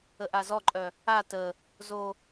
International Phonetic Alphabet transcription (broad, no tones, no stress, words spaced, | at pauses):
əʔazɔǃʼœ | a tə | zo